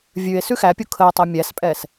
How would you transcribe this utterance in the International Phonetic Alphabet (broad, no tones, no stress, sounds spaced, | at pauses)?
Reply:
vʲ ʉ e̯ s ʉ x æ pʲ u kʰ ə o̯ tˤ æ mʲ æ s pʼ ɛ s